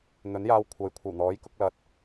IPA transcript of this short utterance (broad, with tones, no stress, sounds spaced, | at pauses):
n̪ ɵ˨˥ n j aː˧ w kʷʰ ɐ˨˥ j kʷʰ ɐ˨˩ w n̪ ɔː˨˥ j k ʊ˧ k̚ l ɐ˨ t̚